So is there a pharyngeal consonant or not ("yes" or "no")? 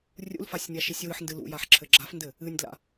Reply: yes